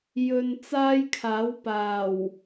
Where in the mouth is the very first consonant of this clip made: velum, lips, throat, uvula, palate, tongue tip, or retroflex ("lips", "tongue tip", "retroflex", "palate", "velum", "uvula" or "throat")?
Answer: palate